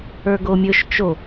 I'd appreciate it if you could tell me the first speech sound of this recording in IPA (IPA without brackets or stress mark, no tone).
ə˞